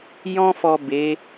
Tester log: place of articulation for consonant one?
palatal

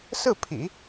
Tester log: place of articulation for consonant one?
alveolar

